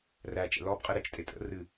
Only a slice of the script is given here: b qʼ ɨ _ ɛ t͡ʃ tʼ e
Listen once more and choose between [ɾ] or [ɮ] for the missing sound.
ɾ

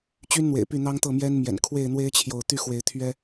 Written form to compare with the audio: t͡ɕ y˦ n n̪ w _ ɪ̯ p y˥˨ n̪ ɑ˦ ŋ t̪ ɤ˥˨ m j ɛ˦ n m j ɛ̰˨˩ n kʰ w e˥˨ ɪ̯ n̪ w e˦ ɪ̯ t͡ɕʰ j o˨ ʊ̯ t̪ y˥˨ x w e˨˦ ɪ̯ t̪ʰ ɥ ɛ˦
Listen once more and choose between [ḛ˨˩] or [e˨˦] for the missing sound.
ḛ˨˩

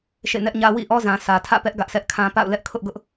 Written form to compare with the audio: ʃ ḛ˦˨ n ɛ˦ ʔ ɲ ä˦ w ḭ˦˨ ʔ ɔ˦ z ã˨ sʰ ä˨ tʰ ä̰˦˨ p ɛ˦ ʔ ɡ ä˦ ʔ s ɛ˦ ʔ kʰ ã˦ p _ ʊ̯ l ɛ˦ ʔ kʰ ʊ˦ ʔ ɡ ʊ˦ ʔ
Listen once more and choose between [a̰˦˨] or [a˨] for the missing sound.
a̰˦˨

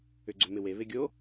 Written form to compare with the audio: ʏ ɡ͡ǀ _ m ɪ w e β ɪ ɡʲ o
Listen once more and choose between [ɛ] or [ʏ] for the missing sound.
ʏ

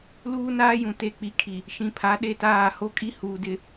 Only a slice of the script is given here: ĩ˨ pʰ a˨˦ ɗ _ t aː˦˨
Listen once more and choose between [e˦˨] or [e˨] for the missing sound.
e˦˨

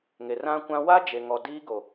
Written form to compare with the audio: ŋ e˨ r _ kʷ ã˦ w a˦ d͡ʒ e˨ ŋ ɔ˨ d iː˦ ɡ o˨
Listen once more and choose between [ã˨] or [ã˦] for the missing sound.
ã˦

